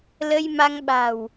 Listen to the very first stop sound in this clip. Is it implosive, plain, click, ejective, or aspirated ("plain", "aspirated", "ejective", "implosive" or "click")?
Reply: implosive